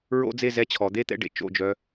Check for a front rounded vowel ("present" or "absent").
present